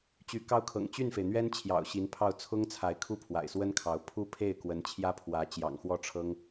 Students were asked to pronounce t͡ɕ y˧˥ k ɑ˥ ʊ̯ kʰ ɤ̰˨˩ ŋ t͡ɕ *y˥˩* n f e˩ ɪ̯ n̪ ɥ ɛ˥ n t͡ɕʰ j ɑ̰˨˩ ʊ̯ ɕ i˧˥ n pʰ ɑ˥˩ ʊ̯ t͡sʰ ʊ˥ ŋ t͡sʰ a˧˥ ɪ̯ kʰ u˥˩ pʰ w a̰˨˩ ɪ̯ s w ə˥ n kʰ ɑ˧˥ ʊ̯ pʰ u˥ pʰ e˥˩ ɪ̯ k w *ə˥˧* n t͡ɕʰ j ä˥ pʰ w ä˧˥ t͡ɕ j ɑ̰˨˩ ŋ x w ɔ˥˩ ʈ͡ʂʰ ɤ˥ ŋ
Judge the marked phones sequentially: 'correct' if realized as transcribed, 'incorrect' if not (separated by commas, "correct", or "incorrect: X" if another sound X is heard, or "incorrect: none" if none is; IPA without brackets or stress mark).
correct, incorrect: ə˧˥